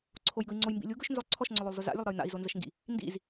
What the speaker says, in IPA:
ǀʰ o j ɡ ɵ i̯ ŋ͡ǀ o j m b ḭ lʲ u ɡ ɵ ʃ n z ɵ lˠ ǀʰ ɔ ʃ ŋ͡ǀ ɵ lˠ o lˠ z ɵ z a̰ lʲ ə lˠ ɾ ɜ j n a̰ i̯ z o n z ə ʃ ŋ ɡ ḭ | n d ḭ z

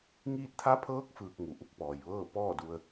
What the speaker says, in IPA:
ŋ iː˧ t̚ t̪ʰ a˧˥ pʰ ɤː˧˥ k̚ f ɯː˧ k̚ ŋ u˩ ʔ u˧˥ k̚ p ɔː˩ j ʋ ɤː˥˨ p ɔː˥˨ d u˧ ə̯

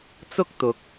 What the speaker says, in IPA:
t͡s ʊ˥ k̚ t̪ ʊ˨ k̚

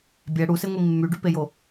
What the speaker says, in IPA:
bʲ æ ɽ u s e ŋʷ i mː y ɖ y p e j o

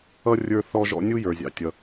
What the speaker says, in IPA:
ʌ˥ rʲ ə˞˥ θ ɔ˥ ʒ ɔ̰˥ nʲ u˥ j ə˞˩ zʲ ɑ̰˩ tʲ ʌ˩

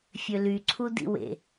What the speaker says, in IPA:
fʲ ø l y ǀʰ u d ḭ w ḛ

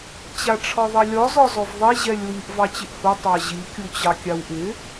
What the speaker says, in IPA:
t͡ɕ a ʈ͡ʂʰ ɒ ðˤ i lʲ ɒ z ɒ z ɔ v ðˤ i ʑ ɛ lʲ w i ʔ v ɑ t͡ɕ ɪ ʔ h u tˤ ɑ ʑ i kʲ u t͡ɕ ɑ kʲ a w ʔ ɪ

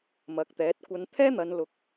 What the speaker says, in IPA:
m ɐ˨˥ k̚ t̪ ɛː˨˥ t̚ kʷ ɐ˨˧ n t̪ʰ ɛː˥ n̪ ɐ˨˧ n l ʊ˨˥ k̚

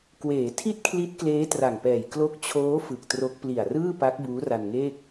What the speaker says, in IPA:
k w eː˩˦ tʰ i˥˩ t̚ kʰ l i˦˥ t̚ k l eː˦˥ t r a˨˩ ŋ p ɛː˨˩ j k l o˦˥ k̚ t͡ɕʰ oː˦˥ f ɯ˨˩ k̚ t r o˦˥ k̚ p l i˨˩ a̯ r ɯː˥˩ p a˦˥ k̚ b uː˦˥ r a˧ n ŋ eː˥˩ k̚

